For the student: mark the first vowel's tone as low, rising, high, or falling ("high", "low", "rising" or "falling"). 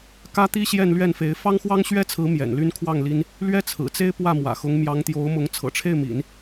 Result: high